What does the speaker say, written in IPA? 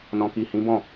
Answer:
n ɔ̃˨ k i˨ h ĩ˨˦ b ɔ̃˦˨

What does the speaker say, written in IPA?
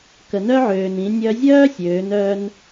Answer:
k ə˩ n œ˥ ʕ øː˩ n ĩ˩˧ nʲ œ˧ zʲ œː˥ sʲ øː˩˧ n œ˧ n

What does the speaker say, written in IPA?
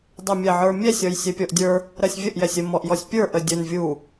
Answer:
dˤ ɛ mʲ ɛ ʕ ə˞ mʲ ɛ sʲ ɔ j sʲ ɛ pʲ ɔ ʔ dʲ ə˞ | ɾ ɜ sʲ vʲ ə ʔ j ɛ sʲ ə m ɔ ʔ j ɔ sʲ pʲ ə˞ ʔ ə dʲ ə n vʲ u

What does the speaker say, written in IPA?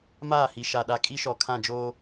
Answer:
m aː˦˨ h i˨ ʃ a˨ ɗ a˨ kʼ i˦ ʃ ɔ˨ kʰ ã˦˨ d͡ʒ oː˦

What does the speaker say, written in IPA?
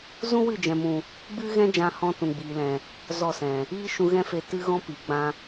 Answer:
z ũ˦ w ɨ˦˨ d͡ʒ ɛ̃˨ m ũ˨ | ɡ͡b ɨ˦ ɣ ɛ̃˦ d͡ʒ ã˧ h ɔ̃˧ t ũ˨ ɡ͡b iː˨ l ɛ̃˨ | z ɔ˦˨ s ɛ̃˨ | iː˦ ʃ ũ˧ ɣ ɛ̃˦ f e˧ t ɨ˦ ɣ ɔ̃˦ p i˨˦ ɡ͡b ã˦

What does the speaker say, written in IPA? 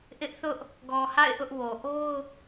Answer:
ʔ ɪ˦ ʔ θ ʊ˦ ʔ | ɡ ɔ˨ h a̰˦˨ ɪ̯ ʔ ʊ˦ ʔ w o˨ ʔ o˦ ʊ̯

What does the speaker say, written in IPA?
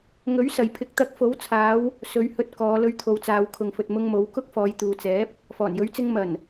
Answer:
ŋ ɵ˨˥ ɥ s ɐ˨ j pʰ ɪ˨˥ k̚ t̪ ɐ˨˥ k̚ f o˨˥ w t͡sʰ aː˨˧ w | s ɵ˨˧ ɥ h ɵ˧ t̚ k ɔː˨˧ l ɵ˧ ɥ t̪ʰ o˨˧ w t͡s aː˨˧ w kʰ ʊ˨ ŋ f ɵ˨ t̚ m ʊ˧ ŋ m o˨˧ w k ʊ˥ k̚ f ɔː˨˧ j t̪ uː˨ t͡s ɛː˨˥ p̚ | f ɔː˨˩ n j ɵ˨˥ ɥ t͡s ɪ˧ ŋ m ɐ˨˩ n

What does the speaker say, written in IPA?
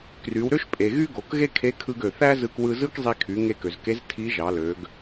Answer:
k r y˩˧ w ɾ ø˥ ʃ pʼ e˩ ɣ y˥ ɡ o˩˧ k ɣ e˥ kʰ e˧˥ kʰ ɯ˧ ɡ ø˩ θ æ˥ z ɯ˧ k w ɯ˧ z ɯ˥ k zˤ i˧ kʰ y˩˧ ŋ e˧ k ø˩ z k e˧˥ z tʰ i˧˥ ʒ ɑ˩˧ l ø˩˧ ɡ

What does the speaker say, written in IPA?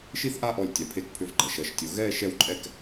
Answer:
ʃ i˥˧ θ ʔ a˥˧ ʔ ɔ˧˩ lʲ tʲ a˩˧ pʰ e˧ k pʰ ʏ˧ v ɡ͡ǃ ɐ˩˧ ʃ ɐ˩˧ ʃ tʲ o˩˧ ɣ ɛː˥˧ ʃ ɛ˥˧ w ǃʼ ɛ˥˧ k

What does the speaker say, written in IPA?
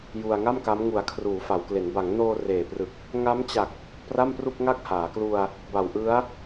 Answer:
j u˧ a̯ ŋ a˥˩ m k a˦˥ m ŋ u˨˩ a̯ kʰ r uː˩˦ f a˩˦ w k l e˩˦ n b a˩˦ ŋ n oː˧ r eː˨˩ p r ɯ˨˩ k̚ | ŋ a˦˥ m t͡ɕ a˨˩ k̚ | p r a˥˩ m p r u˥˩ k̚ ŋ a˥˩ k̚ h aː˩˦ k l u˧ a̯ | b a˨˩ w ʔ ɯ˦˥ a̯

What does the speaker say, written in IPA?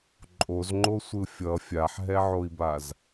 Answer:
ǃʼ o z ŋ͡ǃ o sʷ ɯ fʲ ʌ fʲ a ħ ɦ ɛ ʕ o i̯ b a z

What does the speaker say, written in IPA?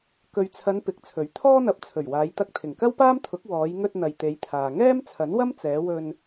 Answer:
k ɵ˨ ɥ t͡sʰ ɐ˨˧ n p ɪ˨˥ k̚ t͡sʰ ɵ˨˥ ɥ t̪ʰ ɔː˥ n̪ ɐ˨˥ p̚ t͡sʰ ɵ˨˩ ɥ w aː˨˧ j t̪ ɐ˧ k̚ t̪ʰ ɪ˨˩ ŋ k ɐ˥ w p aː˥ m t̪ʰ ʊ˨˥ k̚ w ɔː˨˧ j ŋ ɵ˧ t̚ n̪ ɐ˨ j t̪ e˨˧ j t̪ʰ aː˨ ŋ ɛː˥ m t͡sʰ ɐ˨˥ n w ɐ˥ m t͡s ɛː˨˧ w ɵ˧ n

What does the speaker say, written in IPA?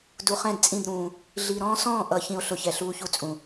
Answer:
d u˨ χ ɛ̃˦˨ d t͡sʼ ĩ˦˨ d ɾ ũː˨ | ɮ i˨ ɾ ɔ̃ː˦ s ɔ̃ː˦˨ ʔ ʌ˨ ç ĩ˨ o̯ ɬ ʊ˨ ç ɛ˨ ɬ uː˦ ç u˦ t͡sʼ ũ˨

